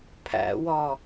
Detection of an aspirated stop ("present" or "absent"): present